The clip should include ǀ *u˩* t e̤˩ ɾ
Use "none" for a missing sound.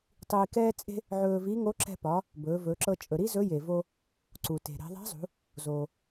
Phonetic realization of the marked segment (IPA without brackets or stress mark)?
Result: u˩